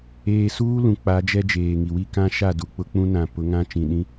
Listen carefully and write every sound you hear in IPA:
eː˨suː˦ lũ˨k͡pa˨˦d͡ʒɛ˦ d͡ʒeː˨ŋi˨wi˦ kã˦ʃa˦˨ du˨k͡pʊ˦k͡pũ˦ nã˨pʊ˨˦ ŋã˦ t͡ʃĩ˨ɗĩ˦

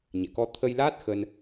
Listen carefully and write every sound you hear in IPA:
ɲɛ̰˧˨kɔ˧ t̪ʰə˧jlaː˦˥t̚ xə˧n

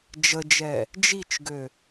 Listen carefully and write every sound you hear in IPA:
d͡ʒəd͡ʒɛ | d͡ʒit͡ʃɡø

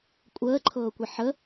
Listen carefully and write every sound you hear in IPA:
kʷʼəːǃʰɤːkʷi ħə

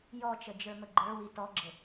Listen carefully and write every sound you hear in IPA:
jɔt͡ʃəd͡ʒə˞mə ɡ͡ǃə˞wi tɔɡ͡ǁə

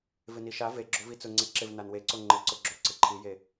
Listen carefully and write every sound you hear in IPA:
vɪniʃa ve ɡ͡ǁovit͡sʊ ŋ͡ǀeǁɪv nanweǀo ŋ͡ǃɪǀʊɡ͡ǁo ǀɪǃʰije

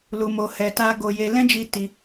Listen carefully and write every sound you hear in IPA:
lu˧mo˧ hɛ˧ta˦ ɡo˧ je˧ lɛ̃˦d͡ʒi˧ ti˧

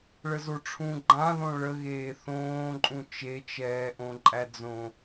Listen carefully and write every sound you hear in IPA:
ɭəzoʈ͡ʂʰũ ɡ͡ǃãðõ ɭəɣeː θõːǃʼũ t͡ʃet͡ʃɛːʔõ ǃʼæd͡zõ

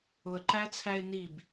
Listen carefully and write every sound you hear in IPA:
ʊə̯ǃæt͡sʰæɪ̯ nib

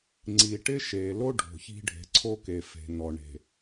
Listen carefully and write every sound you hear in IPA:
ŋ͡ǀi˨ʈɪ˦ʃe˨lo˦ ɖʱo̤˨çi̤˦ ɖʱe̤˨ǀʰo˦ke˨ fe̤˨nɔ˨ ɳe̤˨

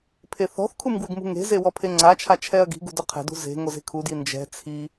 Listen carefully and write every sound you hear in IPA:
pʰeθɔ̤θkʰum ɡwɪɡmṳŋe̤ze wɔpʰeŋ͡ǀat͡ʃʰa t͡ʃʰɛɐ̯ɡi̤ɡṳ dʊqʰɛ̤dṳ ze̤ ŋoze̤kʰudji nd͡ʒɛ̤ t͡sʰi

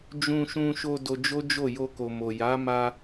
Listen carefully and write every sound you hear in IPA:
d͡ʒũ˧ʃũ˧ʃo˧ do˧d͡ʒo˦d͡ʒo˦˨ jo˧ko˨mo˨ ja˨˦ma˧

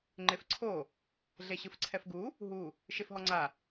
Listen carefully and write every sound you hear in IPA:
ŋ͡ǃefǀʰo | ɮeɕɯfǀʰɛfɡu | ɦu | ʃefɦɔŋ͡ǀa

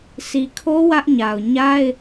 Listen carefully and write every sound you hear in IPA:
sʰi˨kʰo˦ wä˦ʔɲa˨ʊ̯ ɲa˦ɪ̯

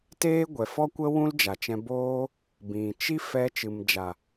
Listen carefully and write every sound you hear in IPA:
teː˦ɡʷɛ˨fɔ˦kʷə˦ wũ˦ld͡ʒa˨t͡ʃɛ̃˧boː˦ | bĩ˨t͡ʃi˦ fɛ˧ t͡ʃɨ˨md͡ʒa˨

